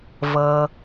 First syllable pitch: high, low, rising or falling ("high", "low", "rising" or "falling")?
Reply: low